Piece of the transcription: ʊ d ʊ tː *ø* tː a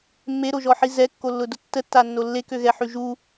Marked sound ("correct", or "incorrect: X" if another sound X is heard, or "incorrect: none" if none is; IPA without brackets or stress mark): incorrect: ə